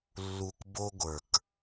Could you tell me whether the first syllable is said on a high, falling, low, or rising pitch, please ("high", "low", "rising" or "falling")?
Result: low